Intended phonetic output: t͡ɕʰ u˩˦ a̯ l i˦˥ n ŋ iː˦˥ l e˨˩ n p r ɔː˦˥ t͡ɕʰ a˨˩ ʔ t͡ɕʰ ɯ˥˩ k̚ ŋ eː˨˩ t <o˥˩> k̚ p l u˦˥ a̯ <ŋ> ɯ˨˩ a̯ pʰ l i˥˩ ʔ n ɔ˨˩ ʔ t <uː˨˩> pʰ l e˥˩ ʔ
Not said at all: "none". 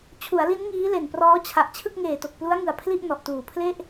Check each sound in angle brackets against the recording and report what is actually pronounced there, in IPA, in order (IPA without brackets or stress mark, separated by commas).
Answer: o˨˩, ŋ, uː˨˩